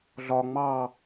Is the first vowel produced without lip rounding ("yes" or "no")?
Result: no